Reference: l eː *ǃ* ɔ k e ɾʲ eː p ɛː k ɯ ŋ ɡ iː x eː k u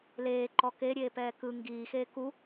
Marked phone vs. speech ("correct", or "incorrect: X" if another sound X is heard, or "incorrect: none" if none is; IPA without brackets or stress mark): correct